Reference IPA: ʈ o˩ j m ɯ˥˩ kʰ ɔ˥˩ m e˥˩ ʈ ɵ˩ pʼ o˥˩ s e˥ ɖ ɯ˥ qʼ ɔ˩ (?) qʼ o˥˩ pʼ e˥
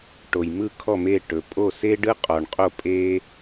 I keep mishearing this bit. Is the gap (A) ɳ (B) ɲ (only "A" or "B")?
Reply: A